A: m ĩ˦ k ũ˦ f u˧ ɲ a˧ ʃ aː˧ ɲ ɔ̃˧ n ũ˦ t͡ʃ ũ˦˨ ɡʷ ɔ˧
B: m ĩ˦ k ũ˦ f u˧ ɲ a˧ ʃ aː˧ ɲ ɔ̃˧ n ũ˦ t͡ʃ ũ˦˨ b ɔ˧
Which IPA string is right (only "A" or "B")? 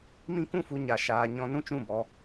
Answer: B